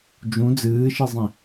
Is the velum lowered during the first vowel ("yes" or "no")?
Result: yes